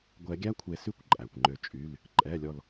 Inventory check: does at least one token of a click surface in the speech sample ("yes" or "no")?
yes